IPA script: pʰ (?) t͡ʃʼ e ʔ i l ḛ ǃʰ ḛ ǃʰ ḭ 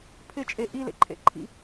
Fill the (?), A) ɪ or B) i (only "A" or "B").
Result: A